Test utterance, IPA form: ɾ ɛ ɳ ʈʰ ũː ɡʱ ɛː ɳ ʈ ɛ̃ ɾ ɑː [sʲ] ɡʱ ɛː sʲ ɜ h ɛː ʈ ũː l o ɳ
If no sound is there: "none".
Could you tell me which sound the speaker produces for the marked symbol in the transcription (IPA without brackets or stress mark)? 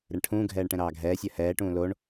none